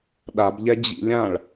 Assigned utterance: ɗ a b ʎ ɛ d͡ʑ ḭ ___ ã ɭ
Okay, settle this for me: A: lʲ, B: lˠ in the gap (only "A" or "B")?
A